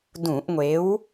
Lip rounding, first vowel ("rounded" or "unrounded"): rounded